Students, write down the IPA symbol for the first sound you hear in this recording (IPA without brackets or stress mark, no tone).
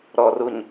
ɾ